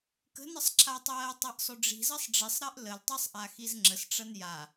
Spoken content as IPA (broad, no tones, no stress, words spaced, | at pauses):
kə̤nəsˤǁʰatˤɜː tˤɜʔsˤɵɖ͡ʐi̤zɜsˤ ɖ͡ʐisˤɾɜʔ ləltˤesˤʔa xizŋ͡ǁəsʈ͡ʂɐn ja